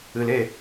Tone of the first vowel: low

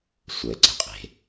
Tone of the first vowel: low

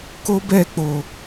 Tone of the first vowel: high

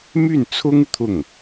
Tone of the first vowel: falling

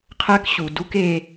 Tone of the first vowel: high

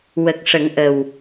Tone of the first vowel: low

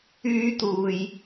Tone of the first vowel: high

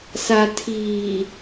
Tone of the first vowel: low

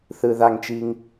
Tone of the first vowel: high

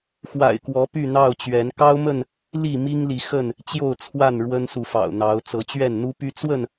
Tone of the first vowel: low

